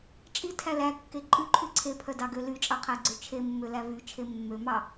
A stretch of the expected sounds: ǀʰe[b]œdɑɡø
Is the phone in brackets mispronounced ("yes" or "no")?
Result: yes